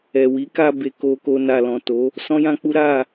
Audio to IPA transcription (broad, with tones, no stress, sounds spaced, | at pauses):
ɛ˨ w i˨˦ k a˧ b e˧ k o˧ k o˧ n a˨ l ɔ̃˨ t o˨˦ | s ɔ̃˦ j ã˦ k͡p u˦ ɾ a˦˨